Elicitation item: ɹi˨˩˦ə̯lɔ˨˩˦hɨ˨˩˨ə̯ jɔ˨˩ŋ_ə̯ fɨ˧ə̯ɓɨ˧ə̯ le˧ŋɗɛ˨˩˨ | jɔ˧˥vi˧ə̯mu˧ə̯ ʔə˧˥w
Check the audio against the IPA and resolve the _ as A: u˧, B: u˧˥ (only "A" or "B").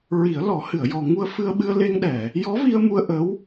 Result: A